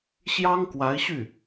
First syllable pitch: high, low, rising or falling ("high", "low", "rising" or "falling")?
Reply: high